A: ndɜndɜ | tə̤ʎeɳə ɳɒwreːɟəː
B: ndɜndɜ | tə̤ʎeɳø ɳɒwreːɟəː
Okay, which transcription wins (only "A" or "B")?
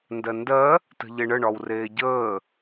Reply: A